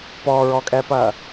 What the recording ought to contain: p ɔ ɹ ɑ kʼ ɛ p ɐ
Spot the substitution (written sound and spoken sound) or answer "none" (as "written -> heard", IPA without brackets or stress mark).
ɑ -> ɔ